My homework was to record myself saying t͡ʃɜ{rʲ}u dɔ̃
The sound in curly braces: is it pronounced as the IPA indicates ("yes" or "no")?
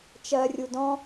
yes